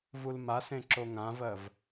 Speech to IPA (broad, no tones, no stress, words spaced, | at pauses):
vulmasẽ ǁoŋãvɜv